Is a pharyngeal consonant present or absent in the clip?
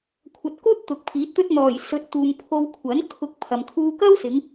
absent